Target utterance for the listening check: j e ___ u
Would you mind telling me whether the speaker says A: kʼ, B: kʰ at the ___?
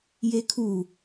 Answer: B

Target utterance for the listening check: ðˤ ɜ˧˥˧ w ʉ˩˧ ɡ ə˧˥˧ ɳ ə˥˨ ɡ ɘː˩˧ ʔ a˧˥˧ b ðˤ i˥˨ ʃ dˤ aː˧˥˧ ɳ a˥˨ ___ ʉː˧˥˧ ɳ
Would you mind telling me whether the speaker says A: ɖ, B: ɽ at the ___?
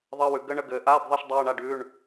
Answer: A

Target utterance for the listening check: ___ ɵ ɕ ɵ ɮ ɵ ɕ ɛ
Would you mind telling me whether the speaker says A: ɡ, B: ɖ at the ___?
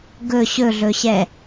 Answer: A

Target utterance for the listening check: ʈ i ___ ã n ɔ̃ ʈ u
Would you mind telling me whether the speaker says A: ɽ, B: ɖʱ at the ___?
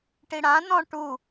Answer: A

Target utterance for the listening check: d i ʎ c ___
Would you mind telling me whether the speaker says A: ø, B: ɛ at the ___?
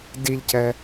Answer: B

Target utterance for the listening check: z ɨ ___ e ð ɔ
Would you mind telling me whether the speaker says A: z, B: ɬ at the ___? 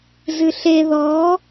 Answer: B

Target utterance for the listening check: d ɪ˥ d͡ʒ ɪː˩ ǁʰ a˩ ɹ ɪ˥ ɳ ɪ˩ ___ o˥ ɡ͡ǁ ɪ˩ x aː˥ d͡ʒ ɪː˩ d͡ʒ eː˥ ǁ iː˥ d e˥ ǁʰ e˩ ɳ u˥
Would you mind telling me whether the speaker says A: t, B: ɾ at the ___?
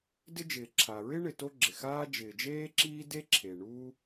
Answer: A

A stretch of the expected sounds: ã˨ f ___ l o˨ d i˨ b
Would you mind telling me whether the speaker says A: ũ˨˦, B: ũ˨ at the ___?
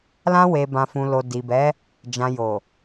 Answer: B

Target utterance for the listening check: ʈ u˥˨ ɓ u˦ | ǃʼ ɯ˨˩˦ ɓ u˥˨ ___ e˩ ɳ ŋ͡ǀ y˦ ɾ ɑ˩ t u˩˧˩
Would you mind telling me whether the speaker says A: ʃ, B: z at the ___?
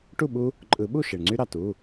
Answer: A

